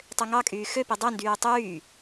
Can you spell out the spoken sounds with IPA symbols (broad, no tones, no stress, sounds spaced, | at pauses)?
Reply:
tˤ ø ŋ ɑ kʼ yː x ø p i dˤ e n d yː tˤ yː